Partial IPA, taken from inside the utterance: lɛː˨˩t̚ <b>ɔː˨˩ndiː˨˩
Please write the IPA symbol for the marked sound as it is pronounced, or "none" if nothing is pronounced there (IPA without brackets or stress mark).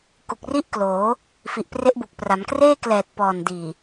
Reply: p